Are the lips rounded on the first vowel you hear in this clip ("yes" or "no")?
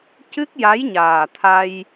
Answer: no